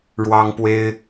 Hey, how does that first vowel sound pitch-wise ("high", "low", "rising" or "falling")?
high